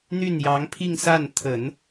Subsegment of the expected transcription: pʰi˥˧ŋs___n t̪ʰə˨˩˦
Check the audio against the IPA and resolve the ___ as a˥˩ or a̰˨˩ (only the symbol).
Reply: a˥˩